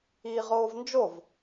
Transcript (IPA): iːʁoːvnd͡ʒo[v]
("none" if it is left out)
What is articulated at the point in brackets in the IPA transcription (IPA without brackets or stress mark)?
v